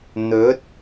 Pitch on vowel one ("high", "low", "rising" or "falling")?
rising